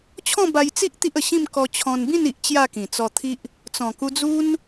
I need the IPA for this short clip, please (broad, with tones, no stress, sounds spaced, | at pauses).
t͡ɕʰ ɔ̃˥˧ b a˧ j t͡s i˦ ʔ t̪ i˦ ʔ ə˨˩ ɕ ĩ˥˧ m k ɔ˧ t͡ɕʰ ɔ̃˧ n b ĩ˥˧ n i˨ ʔ t͡ɕ j a˥˧ k ĩ˨˩ t͡s ɔ˧ t̪ʰ i˦ ʔ | t͡s ɔ̃˨˩ k u˧ d͡z u˦ n